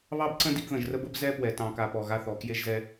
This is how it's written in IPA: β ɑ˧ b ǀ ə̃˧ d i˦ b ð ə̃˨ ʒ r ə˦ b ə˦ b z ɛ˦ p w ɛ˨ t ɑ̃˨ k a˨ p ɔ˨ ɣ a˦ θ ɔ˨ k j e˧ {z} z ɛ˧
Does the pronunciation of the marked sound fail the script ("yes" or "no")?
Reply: yes